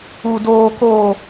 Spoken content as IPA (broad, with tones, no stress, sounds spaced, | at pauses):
u˨ d oː˨ k o˨